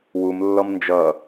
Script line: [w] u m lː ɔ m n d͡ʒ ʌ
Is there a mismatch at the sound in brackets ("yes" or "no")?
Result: no